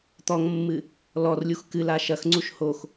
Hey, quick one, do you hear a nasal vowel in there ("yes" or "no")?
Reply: no